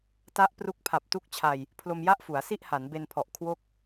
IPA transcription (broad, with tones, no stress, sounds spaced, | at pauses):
t a˦˥ ʔ p r u˦˥ k̚ pʰ a˨˩ p̚ t u˦˥ k̚ t͡ɕʰ a˧ j | pʰ l o˧ m j a˥˩ ʔ f u˩˦ a̯ s i˥˩ ʔ h a˩˦ n b e˧ n pʰ ɔ˨˩ ʔ kʰ w o˥˩ k̚